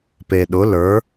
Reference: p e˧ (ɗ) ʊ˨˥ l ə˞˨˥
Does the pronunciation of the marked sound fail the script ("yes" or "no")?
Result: no